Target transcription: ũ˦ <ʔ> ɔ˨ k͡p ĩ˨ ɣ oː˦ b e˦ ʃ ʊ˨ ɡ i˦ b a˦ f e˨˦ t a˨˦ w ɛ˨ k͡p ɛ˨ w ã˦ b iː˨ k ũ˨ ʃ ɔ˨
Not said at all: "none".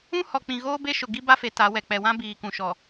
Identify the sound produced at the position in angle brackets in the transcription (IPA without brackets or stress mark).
h